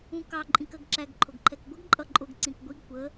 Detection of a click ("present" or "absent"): present